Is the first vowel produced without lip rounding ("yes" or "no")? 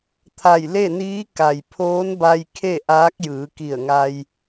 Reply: yes